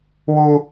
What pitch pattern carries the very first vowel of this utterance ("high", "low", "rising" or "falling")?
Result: high